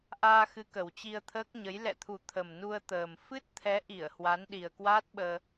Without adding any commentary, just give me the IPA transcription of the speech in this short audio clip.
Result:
ʔ aː˧ x ɨ˨˦ k ə˨˩ w t͡ɕ i˧ ə̯ t̪ʰ əː˦˥ k̚ ɲ ə˨˦ j l ɛ̰˧˨ t̪ʰ u˨˩ t̪ʰ ə˨˩ m n u˧ ə̯ t̪ əː˨˩ m f ɨ˦˥ t̚ t̪ʰ ɛ˨˦ ʔ i˧˩ ə̯ h w a˨˦ n ɗ i˨˩ ə̯ k w aː˦˥ t̚ ɓ əː˧

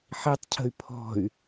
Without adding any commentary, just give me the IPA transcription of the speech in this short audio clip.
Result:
ħ i tˤ cʰ ə̤ y̯ pʰ ɔ̤ y̯

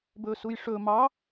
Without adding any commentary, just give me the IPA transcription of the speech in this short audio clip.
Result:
b ɵ s u j ʂ ɵ m ɑ

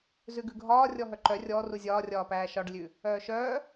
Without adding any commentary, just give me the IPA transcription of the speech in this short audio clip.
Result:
z ʉ ɡ ʉ ɡʱ ɒː rʲ ɔ ɦ œ ǃ œ rʲ ɔ r u zʲ ɒː rʲ ɒː p æː ʃ ɒ ɖ lʲ ʉ | œː ʃ œː

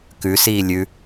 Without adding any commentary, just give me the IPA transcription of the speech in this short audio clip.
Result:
k ʉ s iː lʲ ʉ

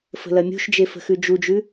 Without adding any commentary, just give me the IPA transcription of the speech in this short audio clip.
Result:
f ə̤ l ɐ mʲ ṳ ʃ d͡ʒ e f ə̤ x ʉ d͡ʒ u d͡ʒ ʉ

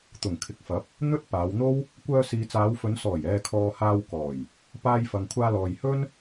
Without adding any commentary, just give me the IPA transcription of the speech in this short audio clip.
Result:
t̪ ʊ˨˩ ŋ kʰ ɪ˨ k̚ f ɐ˨˥ p̚ | n̪ ɵ˥ t̚ p aː˨˧ w n̪ o˥ w | kʷ œː˧ s iː˨ t͡s aː˨˧ w f ɵ˨˧ n s ɔː˨˩ j ɛː˨ kʰ ɔː˨ h aː˧ w k ɔː˨˩ j | p aː˧ j f ɐ˨ ŋ kʷʰ aː˧ l ɔː˨ j h ɵ˥ n

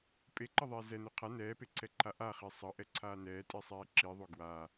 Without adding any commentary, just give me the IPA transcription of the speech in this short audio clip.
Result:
pʼ e ǃ ʌ ðˤ ɛː z ɛ n o qʰ a n ɛː p e ǀʰ ɛ ǃʰ a ʔ a χ e sˤ ʌ ʔ ɛ ǀʰ aː n ɛː tʼ i sˤ ɛː ǁ i ðˤ o ɡ w a

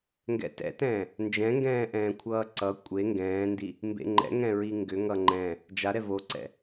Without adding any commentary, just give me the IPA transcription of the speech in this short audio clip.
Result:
ŋ ɡ ɛ̰ t ɛ̰ t ɛ̃ː | n d͡ʒ ɛ̃ ŋ ɡ ɛ̃ː ʔ ɛ̃ː kʷʰ ʌː ǀ ʌ kʷʼ e ŋ ɡ ɛ̃ː n d i | m b ḛ ŋ͡ǃ ɛ̰ ŋ ɛ̃ ɹ i ŋ ɡ ʏ ŋ ʌ ŋ͡ǃ ɛ̃ | d͡ʒ a ɾ ɛ v o ǀ ɛ̰

